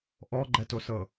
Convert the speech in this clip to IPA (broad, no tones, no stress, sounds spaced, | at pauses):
ʔ ɔ ɡ͡ǃ ɛ t o s ɤ